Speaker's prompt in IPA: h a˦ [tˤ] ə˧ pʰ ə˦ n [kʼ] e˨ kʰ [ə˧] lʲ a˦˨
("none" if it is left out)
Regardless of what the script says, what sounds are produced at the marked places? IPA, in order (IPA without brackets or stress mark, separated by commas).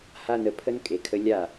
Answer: n, kʼ, ə˧